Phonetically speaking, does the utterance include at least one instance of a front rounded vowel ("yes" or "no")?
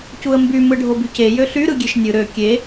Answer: yes